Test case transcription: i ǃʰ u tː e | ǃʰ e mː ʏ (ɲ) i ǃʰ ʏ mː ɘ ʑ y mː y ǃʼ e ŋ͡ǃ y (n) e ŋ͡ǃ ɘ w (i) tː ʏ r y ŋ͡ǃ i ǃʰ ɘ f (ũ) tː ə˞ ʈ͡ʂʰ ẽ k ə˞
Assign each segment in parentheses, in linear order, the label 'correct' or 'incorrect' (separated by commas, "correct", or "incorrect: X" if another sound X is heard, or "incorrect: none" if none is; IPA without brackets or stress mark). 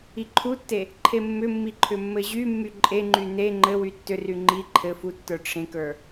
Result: incorrect: mː, correct, incorrect: y, incorrect: u